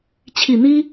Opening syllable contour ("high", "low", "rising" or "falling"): low